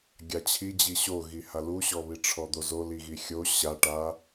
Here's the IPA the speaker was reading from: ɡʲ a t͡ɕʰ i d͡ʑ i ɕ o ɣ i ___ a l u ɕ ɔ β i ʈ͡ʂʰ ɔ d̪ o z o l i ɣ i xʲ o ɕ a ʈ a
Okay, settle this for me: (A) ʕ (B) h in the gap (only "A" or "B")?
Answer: B